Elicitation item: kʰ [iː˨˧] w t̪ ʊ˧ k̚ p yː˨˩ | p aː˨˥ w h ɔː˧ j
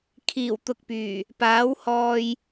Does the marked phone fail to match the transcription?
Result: yes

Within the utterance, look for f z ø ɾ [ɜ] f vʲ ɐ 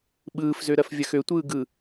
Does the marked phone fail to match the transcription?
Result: no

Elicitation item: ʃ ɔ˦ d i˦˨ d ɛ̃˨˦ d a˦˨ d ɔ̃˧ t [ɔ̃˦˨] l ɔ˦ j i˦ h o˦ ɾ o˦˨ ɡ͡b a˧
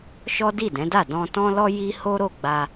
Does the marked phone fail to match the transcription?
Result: yes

